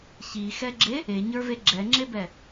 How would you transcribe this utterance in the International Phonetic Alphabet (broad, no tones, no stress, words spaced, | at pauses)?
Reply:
çixɛɡ͡ǁe | eɲə˞ve ɡ͡ǁɛŋ͡ǁebɛ